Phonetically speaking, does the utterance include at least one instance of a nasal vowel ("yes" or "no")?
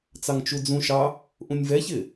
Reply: yes